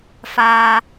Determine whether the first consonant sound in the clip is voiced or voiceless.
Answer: voiceless